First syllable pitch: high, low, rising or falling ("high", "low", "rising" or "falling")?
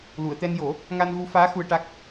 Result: low